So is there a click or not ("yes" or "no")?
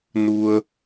no